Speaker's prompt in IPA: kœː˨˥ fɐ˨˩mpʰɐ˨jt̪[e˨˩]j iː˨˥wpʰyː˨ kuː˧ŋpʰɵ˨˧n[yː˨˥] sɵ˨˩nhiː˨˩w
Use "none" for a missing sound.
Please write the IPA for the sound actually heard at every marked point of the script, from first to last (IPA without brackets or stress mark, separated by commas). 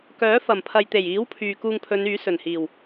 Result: e˨˩, yː˨˥